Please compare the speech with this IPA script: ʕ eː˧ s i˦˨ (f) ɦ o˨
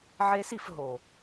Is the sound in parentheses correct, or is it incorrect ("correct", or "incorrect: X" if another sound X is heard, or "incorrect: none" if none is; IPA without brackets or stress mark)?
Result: correct